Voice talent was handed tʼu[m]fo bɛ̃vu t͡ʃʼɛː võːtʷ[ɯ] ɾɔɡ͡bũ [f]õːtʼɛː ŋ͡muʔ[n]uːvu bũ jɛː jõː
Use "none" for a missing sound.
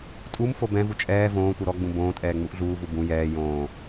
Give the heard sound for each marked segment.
m, ɯ, b, ɮ

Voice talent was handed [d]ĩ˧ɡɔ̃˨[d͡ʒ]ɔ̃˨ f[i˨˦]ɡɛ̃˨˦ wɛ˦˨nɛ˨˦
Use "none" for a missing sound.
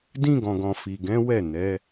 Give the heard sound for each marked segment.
d, ɡ, i˨

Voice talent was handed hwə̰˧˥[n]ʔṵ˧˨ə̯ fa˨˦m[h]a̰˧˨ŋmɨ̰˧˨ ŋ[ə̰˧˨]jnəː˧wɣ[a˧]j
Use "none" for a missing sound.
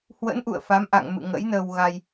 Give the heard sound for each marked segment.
n, ʔ, ə̰˧˥, a˧

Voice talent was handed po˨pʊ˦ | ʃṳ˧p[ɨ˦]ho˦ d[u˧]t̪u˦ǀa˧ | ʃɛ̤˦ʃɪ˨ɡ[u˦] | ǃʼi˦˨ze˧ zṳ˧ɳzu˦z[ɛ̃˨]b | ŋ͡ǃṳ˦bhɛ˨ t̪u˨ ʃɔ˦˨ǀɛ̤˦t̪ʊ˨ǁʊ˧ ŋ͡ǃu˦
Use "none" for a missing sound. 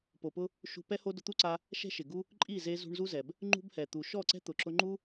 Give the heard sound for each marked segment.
ɛ˦, ʊ˧, u˦, ɛ˨

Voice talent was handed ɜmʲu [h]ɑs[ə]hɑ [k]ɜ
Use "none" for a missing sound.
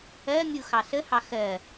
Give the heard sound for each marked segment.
x, ə, x

